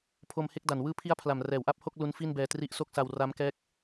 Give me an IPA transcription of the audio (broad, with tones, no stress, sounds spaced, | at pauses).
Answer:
pʰ o˧ m h e˥˩ k̚ d a˨˩ n w ɯː˦˥ pʰ i˦˥ a̯ pʰ l a˨˩ m r ɛː˩˦ w ʔ a˦˥ p̚ h o˥˩ k̚ l u˦˥ n f i˥˩ n b ɛː˧ t r i˦˥ ʔ s o˥˩ k̚ s a˧ w r a˦˥ m k ɛː˦˥ k̚